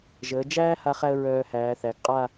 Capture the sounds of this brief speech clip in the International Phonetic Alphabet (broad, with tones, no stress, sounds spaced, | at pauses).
ʒ əː˩˧ d͡ʒ æː˥ h a˥˧ χ æ˥ ə̯ ɹ œː˧ h æː˩˧ θ æ˩˧ ɡ qʼ a˥˧